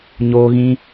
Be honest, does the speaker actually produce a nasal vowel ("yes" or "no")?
yes